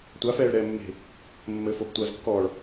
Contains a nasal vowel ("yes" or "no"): no